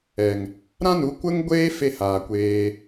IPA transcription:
ɛ˨ ŋ | ɾ ã˦ n u˨˦ kʷ ə˦ ŋ ɡʷ eː˦ f e˦˨ h aː˨ kʷ eː˧

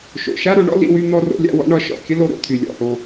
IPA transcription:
ʃ o̰˨ ʃ a˦ ɾ o˨˦ ɳ ɔ̰˦ l ḭ˦ w y˦ n̪ ɔ˦ r o̰˦ lʲ a̰˦ w ɔ̰˦ ɳ ɒ˦ ʃ ɔ̰˨ kʲ ə˦ l o˦ ɾ o̰˦˨ t̪ʰ y˨ lʲ ɔ̰˦˨ h o˦

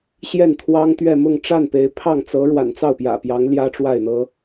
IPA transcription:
ɕ j ɛ˥˩ n t̪ʰ w ɑ˥ ŋ t̪ ɥ ɛ˥˧ m ʊ˥˧ ŋ ʈ͡ʂ a˥˩ n p e˧˥ ɪ̯ pʰ ɑ˥˩ ŋ t͡s ɤ˧˥ ɻ w a̰˨˩ n t͡s ɑ˥˩ ʊ̯ p j ä̰˨˩ p j ɑ˧˥ ŋ l j ä˥ ʈ͡ʂ w a˥˩ ɪ̯ n̪ ɤ˥

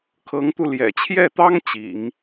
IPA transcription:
kʰ ɤ˧˥ ŋ t̪ u˧ l j ɛ̰˨˩ t͡ɕʰ j ɛ˥˩ t̪ ɑ˥ ŋ t͡ɕ ḭ˨˩˦ ŋ

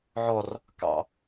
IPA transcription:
ʕ ɔ r | k ɑ̰

